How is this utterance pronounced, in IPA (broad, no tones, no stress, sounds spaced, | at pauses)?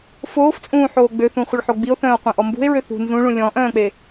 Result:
f oː f t͡sʼ ũː ħ oː ɡ͡b ø θ ũ χʷ ə ɭ ħ o ɡ͡b i o̯ θ œ̃ː o̯ qʷ ɛ̃ ʔ ɔ m b ṳ e̯ ɹ ø θ ṳ n z ũ ɭ ũ lʲ ɔ̃ ʔ œ̃ː k͡p e